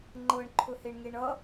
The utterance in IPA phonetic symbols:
ŋ͡ǃ ɤ ɳ ǃʰ ɵ h e ɳ ŋ e ɳ ʌ

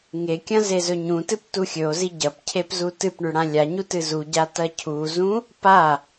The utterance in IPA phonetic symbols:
ŋ e kʲ ɐ̃ z e z ɵ ɲ ũ t ɨ p t u xʲ ɵ o̯ z i ɟ ɐ p cʰ e p z u t ɨ p ɳ ʉ ɽ ã lʲ a ɲ u t ɨ z u ɟ a t ɐ cʰ u z ũ | p a

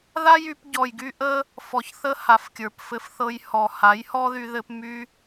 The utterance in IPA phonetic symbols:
ð a˦ j y˧ p ɟ ɔ˨ j ɡ y˧ ʔ ə˧ | f ɔ˧ ç θ ə˦ h a˨˦ f kʲ ə˞˨ p f ɘ˧ f θ ɤ˧ j h ɔ˨ h a˨˦ j h ɔ˦ ð y˧ ð ɘ˧ p m y˧

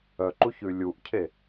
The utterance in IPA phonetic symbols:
œ ǃ u ç ʉ lʲ u ʔ cʰ e

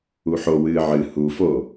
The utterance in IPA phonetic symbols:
u ħ o w ɨː ʕ ɨ h u f o

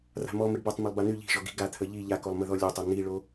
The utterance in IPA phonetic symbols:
r a̤ m ɔ m ə ɖ b a tˤ m ə lˠ b a n̪ y ʎ i̤ ʒ ɔ ɡ i̤ ɡ a t̪ʰ ə ʎ i ʎ a k o lˠ m ə ð ɔ lʲ o tˤ o n̪ i ɭ o

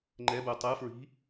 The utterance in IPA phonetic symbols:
ŋ͡ǃ ɛ b u tˤ ɯ f ɹ i̤

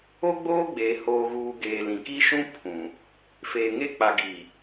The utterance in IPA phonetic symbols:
o˦ ɡ͡b oː˦ ɡ͡b eː˨ h oː˨ ɣ uː˨ ɡ eː˨ l ĩ˨ k i˦ ʃ ũ˦ pʰ ũ˨ | f eː˨ ŋ e˦ k͡p a˨ ɡ iː˨

